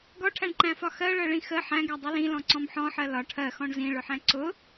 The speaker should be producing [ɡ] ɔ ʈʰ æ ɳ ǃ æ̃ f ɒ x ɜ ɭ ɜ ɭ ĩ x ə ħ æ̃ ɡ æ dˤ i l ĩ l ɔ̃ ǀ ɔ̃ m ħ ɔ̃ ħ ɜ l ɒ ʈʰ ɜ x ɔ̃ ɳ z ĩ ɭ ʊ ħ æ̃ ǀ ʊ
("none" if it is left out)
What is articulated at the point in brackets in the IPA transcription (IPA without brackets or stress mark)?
ɡ